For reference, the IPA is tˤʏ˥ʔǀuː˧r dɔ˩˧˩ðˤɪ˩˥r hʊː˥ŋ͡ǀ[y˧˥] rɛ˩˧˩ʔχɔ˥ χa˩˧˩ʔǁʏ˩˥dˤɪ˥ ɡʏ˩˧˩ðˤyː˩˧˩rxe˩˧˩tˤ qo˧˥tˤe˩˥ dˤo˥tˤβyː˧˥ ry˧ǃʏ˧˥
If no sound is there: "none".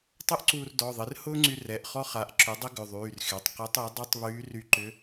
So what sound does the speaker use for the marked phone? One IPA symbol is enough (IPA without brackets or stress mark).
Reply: y˧